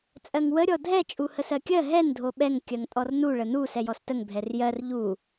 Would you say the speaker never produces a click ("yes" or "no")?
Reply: yes